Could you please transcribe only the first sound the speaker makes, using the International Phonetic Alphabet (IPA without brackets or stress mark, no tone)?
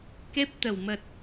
k